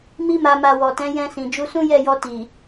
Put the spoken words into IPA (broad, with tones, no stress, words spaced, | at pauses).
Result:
mi˧ma˨ma˨ wɔ˨tɛ̃˨˦ jɛ̃˧sĩ˨ d͡ʒu˧sũ˦jɛ˦˨jɔ˧ ti˨